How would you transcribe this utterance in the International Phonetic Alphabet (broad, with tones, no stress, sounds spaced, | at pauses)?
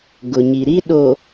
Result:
ɡ ʊ˨ ɲ i˨ ɾ i˦ ɗ o˨